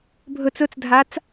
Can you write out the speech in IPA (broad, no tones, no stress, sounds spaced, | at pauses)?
bʱ ɵ t͡s ɵ t͡s dʱ a t͡s